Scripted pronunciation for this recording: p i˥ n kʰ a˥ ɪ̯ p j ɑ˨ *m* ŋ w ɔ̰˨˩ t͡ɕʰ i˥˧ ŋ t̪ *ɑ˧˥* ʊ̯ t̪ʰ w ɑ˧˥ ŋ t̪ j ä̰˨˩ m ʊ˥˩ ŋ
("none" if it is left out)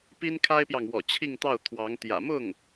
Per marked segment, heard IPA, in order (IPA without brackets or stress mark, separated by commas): none, ɑ˥˩